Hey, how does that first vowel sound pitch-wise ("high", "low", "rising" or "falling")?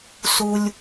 high